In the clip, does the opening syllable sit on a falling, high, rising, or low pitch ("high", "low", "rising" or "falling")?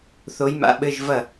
rising